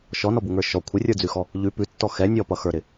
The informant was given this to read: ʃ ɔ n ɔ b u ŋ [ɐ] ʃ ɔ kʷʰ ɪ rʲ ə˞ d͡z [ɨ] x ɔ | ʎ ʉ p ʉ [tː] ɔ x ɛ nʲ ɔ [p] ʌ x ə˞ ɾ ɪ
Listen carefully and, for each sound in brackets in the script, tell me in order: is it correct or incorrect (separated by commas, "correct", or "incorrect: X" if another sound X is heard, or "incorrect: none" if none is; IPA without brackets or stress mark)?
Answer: incorrect: ə˞, incorrect: ʉ, correct, correct